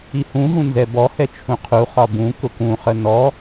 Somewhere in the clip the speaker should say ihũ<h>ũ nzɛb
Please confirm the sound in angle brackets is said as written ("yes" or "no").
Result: no